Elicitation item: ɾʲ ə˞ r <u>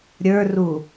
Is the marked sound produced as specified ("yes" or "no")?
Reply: yes